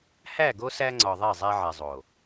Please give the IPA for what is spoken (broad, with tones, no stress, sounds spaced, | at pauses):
h æ˦˨ ɡ o˦ s æ˦ ŋ͡ǀ ɒ˨ ðˤ e˦˨ zˤ æ˦ ʕ e˨ zˤ o˨